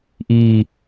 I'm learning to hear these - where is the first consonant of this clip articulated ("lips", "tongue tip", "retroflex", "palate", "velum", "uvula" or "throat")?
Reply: throat